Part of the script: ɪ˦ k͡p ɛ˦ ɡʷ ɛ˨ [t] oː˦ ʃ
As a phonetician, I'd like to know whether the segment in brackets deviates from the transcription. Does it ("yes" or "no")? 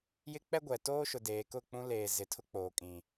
no